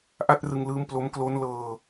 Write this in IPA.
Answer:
ʔa˥˩t̚rɯ˧ŋlɯː˦˥mplo˦˥m klo˦˥nlɤː˧

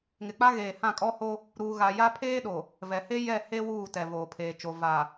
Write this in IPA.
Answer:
ŋɪ˨k͡pa˦ɣeː˨hã˦˨ kʼɔ˦ho˦ | ɾuː˨ɣa˨ja˦ pʰeː˦ɗo˨ | vɛ˨he˦ jɛ˦˨ he˦ wuː˦˨tɛ˨ voː˨pʰeː˨t͡ʃo˨ va˨

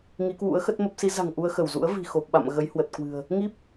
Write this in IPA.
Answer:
ŋi˨˦kwṵ˧˥ə̯xə˦˥t̚mə˦˥p̚ si˨˦ za̤˨˩ŋ ʔu˧ə̯xə˧˩wzṵ˧˥ə̯ vi̤˨˩xo˨˩p̚ɓa̰˧˨m ɣə˨˦jhwə˨˩t̚kwɨ̤˨˩ə̯ | ŋi˦˥p̚

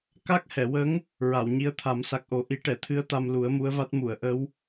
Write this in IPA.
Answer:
ka˦˥k̚hɛ˨˩˨wə˧˥ŋ | ɹa˨˩˨wɲi˧˥ə̯t̪ʰa˨˩˦m sa˨˩k̚ʔo˨˩˦ ʔi˨˩˦ʈɛ˨˩˨t̪ʰɨ˧˥ə̯ t̪a˧mlu˨˩˦ə̯mu˧˥ə̯va˦˥t̚ mu˨˩˨ə̯ʔə˧˥w

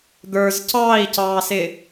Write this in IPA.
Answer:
d̪ə˞z cɑːi̯cɑːsɪ

